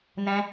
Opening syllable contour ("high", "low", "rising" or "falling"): high